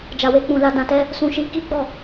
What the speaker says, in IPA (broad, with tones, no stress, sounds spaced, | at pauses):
d͡ʒ a˨ w e˧ k͡p ũ˨ l a˧ d ã˧ t ɛ˦ | s ũ˧ ʃ i˧ k i˦ ɡ͡b ɔ˦˨